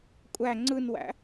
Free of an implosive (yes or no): yes